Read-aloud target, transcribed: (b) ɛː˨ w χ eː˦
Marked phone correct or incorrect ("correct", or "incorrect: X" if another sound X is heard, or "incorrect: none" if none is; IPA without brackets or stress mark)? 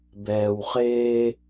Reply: correct